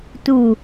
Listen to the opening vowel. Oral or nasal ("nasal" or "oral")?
oral